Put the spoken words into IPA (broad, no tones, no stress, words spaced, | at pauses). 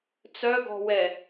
t͡sœɡɔ̤wɛ